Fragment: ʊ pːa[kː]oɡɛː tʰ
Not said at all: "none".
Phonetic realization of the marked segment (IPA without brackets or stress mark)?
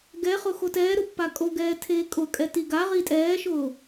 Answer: kʼ